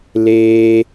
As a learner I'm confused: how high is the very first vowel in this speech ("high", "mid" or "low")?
mid